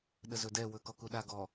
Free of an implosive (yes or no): no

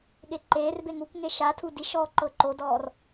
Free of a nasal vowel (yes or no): yes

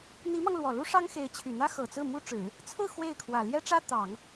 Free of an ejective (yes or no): yes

